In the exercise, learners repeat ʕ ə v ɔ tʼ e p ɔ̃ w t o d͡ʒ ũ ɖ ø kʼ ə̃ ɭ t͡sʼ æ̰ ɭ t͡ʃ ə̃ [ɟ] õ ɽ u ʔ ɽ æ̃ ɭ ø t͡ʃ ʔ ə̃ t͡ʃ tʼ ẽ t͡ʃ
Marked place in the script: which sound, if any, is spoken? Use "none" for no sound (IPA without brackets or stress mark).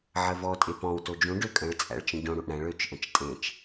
ɟ